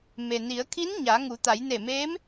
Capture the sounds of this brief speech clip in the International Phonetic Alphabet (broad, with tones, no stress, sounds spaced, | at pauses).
m e˩ n i˩˧ ə̯ kʰ i˧˥ n ɲ a˩˧ ŋ u˩˧ t̪ a˩˧ j n e˧˩ m eː˧˥ m